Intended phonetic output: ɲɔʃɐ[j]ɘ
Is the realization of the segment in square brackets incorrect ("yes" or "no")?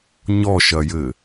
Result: no